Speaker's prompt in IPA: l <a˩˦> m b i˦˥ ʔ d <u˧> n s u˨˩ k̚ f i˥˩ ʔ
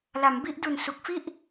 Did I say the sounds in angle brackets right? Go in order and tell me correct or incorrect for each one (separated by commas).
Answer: correct, incorrect